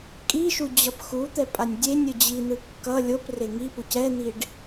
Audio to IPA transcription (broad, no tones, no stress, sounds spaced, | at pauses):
kʼ i ʃ u d͡ʑ ʌ p x u t̪ ɛ pʼ a nʲ dʲ e nʲ ɯ d͡ʑ i n̪ ɯ kː ʌ lʲ o p r e ŋ i p u c ɛ n̪ i ɖ